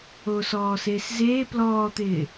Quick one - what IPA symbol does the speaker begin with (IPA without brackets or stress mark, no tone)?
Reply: o